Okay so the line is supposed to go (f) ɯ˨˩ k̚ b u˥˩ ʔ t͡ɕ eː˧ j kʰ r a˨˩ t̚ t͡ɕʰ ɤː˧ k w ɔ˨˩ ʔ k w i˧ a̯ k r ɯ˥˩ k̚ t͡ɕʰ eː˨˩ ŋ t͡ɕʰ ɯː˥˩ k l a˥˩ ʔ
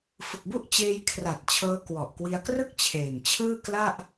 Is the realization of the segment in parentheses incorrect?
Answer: no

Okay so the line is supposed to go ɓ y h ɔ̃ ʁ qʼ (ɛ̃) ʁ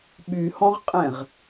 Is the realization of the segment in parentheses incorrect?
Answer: no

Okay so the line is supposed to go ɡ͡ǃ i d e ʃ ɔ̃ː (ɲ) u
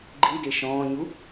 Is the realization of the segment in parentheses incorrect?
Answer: no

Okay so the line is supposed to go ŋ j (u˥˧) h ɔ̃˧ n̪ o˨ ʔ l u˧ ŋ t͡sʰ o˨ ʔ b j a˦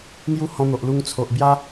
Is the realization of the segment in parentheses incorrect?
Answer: yes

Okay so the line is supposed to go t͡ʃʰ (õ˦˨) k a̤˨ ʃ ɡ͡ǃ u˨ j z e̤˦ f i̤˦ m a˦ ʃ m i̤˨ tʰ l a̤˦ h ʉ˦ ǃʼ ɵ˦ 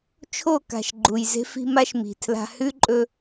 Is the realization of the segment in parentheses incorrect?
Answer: yes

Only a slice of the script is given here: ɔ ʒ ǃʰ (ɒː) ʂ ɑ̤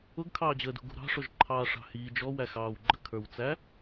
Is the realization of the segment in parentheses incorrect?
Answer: yes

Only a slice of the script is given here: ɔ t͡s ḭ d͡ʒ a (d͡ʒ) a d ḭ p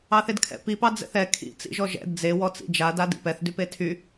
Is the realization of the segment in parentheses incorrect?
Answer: yes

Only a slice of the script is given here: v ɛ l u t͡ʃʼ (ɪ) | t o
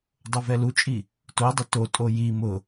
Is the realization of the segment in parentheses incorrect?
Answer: yes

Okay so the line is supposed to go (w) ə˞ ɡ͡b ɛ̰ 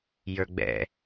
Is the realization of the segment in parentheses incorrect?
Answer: yes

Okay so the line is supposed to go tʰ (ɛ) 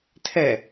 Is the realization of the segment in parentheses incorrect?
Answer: no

